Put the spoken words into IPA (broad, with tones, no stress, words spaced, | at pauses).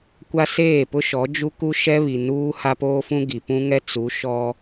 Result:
kʷa˦seː˦˨pʊ˦ʃɔ˨˦ d͡ʒu˦ ku˦ʃɛ˦βi˨ nuː˦ ha˦poː˦fũ˦ ɡi˨pũ˦ŋɛ˦ t͡su˨˦ ʃɔ˦